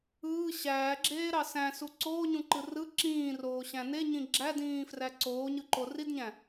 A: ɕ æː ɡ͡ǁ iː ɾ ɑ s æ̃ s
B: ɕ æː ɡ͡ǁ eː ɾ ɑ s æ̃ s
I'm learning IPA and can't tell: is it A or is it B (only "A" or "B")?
B